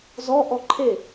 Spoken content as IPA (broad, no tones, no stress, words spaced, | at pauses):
zɔ ʔɔǃʰe